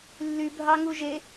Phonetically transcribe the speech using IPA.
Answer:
lːybʱɑŋu ʒe

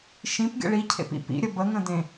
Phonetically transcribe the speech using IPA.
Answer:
ʃĩpɡʲə̰ ɭicʰḛpḭ pḭɾʲə bəŋə̃dẽ

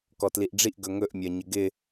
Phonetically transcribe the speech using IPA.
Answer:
kɔtliʔɖ͡ʐiʔ ɡɵŋɵʔmʲɜ ɲɪɡɪ

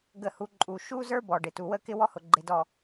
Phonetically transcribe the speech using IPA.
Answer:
ɡə˨hu˨ ǃʼu˨ ʃu˦zə˞˦bɔ˨ɖɪ˨ tu˨wə˦kɪ˦ wɔ˦hʊ˨ɡ͡ǃɪ˨dɔ˨

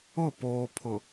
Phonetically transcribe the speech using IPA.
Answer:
ʊ˦˨poː˨pʰʊ˨

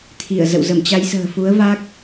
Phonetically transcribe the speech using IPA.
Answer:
t̪ʰi˧˩ə̯zə̰˧˨w zə˧˩mt͡ɕa˨˦jsə̤ː˨˩ fu˨˦ə̯va˦˥k̚

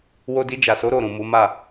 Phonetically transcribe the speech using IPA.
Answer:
wo˧di˧d͡ʒa˨so˨˦ ɾo˦˨ ɾũ˨mu˨˦ma˦˨

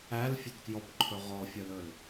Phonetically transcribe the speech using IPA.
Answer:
ælfʲɵdkjɔpǃʰɵ ʁɔfʲœlɵl

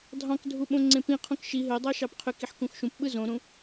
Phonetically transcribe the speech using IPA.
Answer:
dʱɑ̃kdʱu ɓõŋ͡ǀẽpĩqʰõk ʃi ɦødˤɑ ʃɑpqʰøkiħ kũxʃũpɓɯ zõɾũ

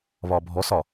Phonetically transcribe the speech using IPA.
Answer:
βɒbʱɔsɒ

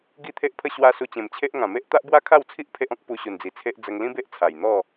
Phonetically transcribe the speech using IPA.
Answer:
ɡi˦t̪ʰe˦ʔpʰə˦ ɕwa˦ su˧t͡ɕẽ˨˩mt͡ɕʰe˦ʔ ŋã˨˩me˦ʔ t̪a˦ʔbwa˦kʰa˥˧wt͡sʰi˦ʔ pʰe˦ʔɔ̃˦k̚ pu˧ɕu˨˩nd͡zi˨˩t͡sʰe˦ʔ d͡zə˧ŋlĩ˦be˦ʔ t͡sʰa˨˩j n̪ɔ˥˧

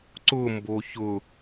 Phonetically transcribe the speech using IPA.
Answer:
ǀʊmbo çʊ

